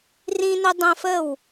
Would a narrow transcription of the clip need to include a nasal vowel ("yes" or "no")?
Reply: yes